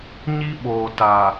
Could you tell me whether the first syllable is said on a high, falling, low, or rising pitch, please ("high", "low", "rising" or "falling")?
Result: high